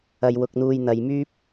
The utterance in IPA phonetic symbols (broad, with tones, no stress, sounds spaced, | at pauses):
ɐ˨ j w ʊ˧ k̚ n̪ uː˧ j n̪ ɐ˨ j m yː˥ p̚